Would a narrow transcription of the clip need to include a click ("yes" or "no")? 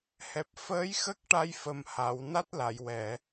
no